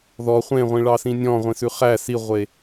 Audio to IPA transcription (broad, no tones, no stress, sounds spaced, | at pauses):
ð ɔ χʷ ẽ ʁʷ ĩ ɭ ɑ s ĩ nʲ ɔ̃ ʁʷ ĩ s ʉ χ æ s i ʁʷ e